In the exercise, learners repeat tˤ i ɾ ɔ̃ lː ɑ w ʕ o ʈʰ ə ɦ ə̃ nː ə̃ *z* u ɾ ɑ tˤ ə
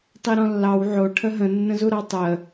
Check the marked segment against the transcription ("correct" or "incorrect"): correct